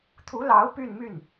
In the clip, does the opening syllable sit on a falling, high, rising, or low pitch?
rising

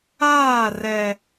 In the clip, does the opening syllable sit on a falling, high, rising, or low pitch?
falling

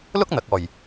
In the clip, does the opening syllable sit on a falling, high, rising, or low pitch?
high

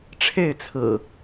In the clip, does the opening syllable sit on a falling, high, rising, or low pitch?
falling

